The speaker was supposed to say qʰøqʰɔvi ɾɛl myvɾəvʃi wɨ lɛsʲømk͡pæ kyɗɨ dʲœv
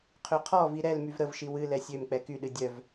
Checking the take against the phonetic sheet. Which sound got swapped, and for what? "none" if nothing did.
æ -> ɛ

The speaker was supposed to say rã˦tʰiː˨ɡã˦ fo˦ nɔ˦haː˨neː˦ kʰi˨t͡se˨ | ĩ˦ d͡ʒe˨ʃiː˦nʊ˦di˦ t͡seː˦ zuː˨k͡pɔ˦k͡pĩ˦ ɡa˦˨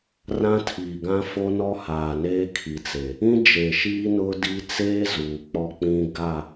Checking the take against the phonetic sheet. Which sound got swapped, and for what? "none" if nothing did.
none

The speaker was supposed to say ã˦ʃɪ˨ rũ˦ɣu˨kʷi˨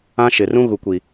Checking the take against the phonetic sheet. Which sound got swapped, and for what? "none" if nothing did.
none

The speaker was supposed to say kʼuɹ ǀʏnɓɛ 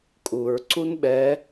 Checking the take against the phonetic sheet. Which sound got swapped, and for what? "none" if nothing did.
ʏ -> u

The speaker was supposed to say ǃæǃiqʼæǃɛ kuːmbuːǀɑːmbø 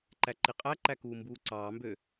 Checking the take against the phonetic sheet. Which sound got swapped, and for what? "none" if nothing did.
ɛ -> æ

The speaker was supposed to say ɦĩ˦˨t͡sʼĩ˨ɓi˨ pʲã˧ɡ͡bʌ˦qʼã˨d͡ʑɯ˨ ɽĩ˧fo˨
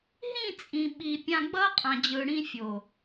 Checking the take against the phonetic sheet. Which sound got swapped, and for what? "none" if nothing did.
f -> fʲ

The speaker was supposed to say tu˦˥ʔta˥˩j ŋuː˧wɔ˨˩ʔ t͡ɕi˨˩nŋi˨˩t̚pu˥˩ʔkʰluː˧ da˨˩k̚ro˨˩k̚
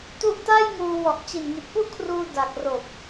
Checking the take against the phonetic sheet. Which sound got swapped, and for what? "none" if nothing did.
l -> r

